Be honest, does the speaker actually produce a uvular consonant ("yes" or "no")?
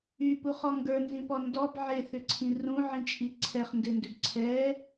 yes